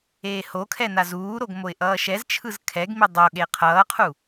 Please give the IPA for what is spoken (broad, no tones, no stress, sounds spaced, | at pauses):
eː h o kʰ ɛ n a z uː ɾ o ɡ m o ɪ̯ ʔ ʌː ʃ ɛ z t͡ʃʰ ɯ z kʰ ɛ ɡ m i dˤ o ɠ e qʰ ʌː qʰ u